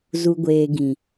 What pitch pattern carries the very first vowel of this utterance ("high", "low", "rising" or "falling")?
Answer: low